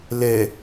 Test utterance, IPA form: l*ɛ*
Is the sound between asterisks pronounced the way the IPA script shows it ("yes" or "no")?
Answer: yes